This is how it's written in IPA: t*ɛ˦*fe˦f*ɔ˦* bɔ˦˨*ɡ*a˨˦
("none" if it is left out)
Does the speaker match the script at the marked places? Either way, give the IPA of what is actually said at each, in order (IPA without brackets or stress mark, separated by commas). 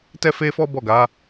ɛ˦, ɔ˦, ɡ